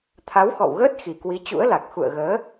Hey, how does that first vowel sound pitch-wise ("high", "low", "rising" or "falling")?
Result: rising